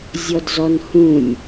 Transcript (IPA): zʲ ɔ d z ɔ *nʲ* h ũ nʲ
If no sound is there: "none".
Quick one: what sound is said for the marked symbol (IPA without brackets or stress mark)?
n